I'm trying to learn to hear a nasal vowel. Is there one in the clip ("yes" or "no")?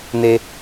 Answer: no